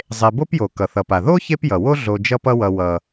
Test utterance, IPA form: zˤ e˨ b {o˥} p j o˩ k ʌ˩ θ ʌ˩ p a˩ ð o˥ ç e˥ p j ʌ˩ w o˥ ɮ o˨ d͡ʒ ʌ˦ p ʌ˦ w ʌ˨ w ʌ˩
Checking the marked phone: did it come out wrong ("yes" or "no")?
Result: yes